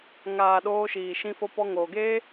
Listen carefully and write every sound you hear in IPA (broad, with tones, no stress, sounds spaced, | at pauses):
ŋ aː˨ ɗ oː˧ ʃ iː˨ ʃ ĩ˧ f o˧ p ɔ˧ ŋ oː˨ ɡ eː˦